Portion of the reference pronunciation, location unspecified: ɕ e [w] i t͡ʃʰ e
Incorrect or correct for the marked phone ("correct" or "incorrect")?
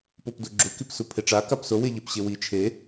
correct